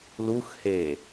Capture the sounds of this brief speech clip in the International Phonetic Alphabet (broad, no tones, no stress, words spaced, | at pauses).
luxheː